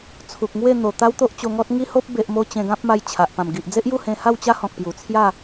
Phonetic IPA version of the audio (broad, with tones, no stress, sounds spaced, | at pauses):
t͡sʰ u˨ k̚ ŋ w e˥˧ n̪ o˨˩ t̪ a˦ w t̪ o˦ ʔ t͡ɕ o˧ ŋ ɔ˦ t̚ ŋ i˦ h o˦ p̚ b e˨ ʔ m o˧ t͡ɕ ẽ˧ ɡ ã˦ p̚ m a˧ j t͡ɕʰ a˨ ʔ p ã˨˩ m ɡ i˨ ʔ d͡z e˦ ʔ j u˥˧ h ẽ˧ h a˥˧ w t͡ɕ a˦ h ɔ̃˨ k̚ p j u˨˩ t͡sʰ j a˥˧